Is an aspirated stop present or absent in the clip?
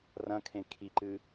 present